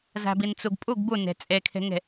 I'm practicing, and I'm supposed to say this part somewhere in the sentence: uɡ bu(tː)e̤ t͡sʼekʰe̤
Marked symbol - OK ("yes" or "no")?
no